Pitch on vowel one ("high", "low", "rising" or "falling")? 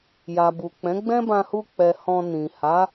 low